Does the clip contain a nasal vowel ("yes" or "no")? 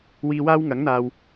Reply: no